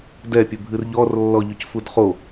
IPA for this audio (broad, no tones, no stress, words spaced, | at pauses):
dɛpʲɵbʱɨr ʎɔrlːɔʎɵcfud χo